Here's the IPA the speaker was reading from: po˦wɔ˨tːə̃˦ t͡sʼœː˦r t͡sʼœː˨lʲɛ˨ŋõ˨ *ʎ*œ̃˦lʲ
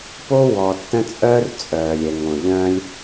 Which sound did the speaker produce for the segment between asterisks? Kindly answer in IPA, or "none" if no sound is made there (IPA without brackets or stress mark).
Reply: ʎ